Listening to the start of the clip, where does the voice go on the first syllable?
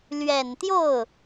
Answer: low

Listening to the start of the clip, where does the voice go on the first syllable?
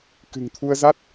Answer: low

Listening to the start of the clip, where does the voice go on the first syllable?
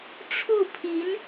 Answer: falling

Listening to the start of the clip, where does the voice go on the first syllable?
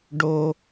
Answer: high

